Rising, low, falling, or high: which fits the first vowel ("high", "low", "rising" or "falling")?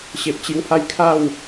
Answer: low